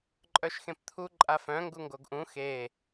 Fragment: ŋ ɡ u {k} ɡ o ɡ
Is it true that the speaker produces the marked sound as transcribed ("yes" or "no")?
no